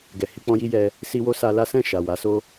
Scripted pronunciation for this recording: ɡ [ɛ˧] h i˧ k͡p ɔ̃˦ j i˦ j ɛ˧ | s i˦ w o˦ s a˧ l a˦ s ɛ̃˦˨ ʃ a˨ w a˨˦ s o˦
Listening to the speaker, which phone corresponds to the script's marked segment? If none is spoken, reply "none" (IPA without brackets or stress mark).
ɛ˨